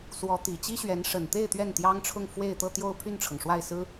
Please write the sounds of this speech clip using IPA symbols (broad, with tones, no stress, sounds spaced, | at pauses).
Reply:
s w ɔ˧˥ t̪ i˨˩ t͡ɕ i˥ ɕ ɥ ɛ˧˥ n ʂ ə˨˩ n t̪ e˥˧ ɪ̯ t̪ ɥ ɛ˥˩ n t̪ j ɑ˥ ŋ ʈ͡ʂʰ ʊ˥˧ ŋ f w e˥˧ ɪ̯ t̪ ɤ˥˧ t̪ j o˥˧ ʊ̯ pʰ y˥˩ n ʈ͡ʂʰ ɤ˩ ŋ ʂ w a˥˩ ɪ̯ s ɹ̩˥